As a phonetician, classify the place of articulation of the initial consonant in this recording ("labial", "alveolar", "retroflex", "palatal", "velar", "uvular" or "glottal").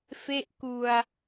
labial